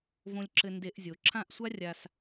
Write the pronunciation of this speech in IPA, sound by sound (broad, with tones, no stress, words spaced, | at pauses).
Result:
võ˧lʲǁɘ˧ nde˧˩˧ʔzʲo˩˧ǁʰã˥˨ʔsʷa˥ rʲa˧s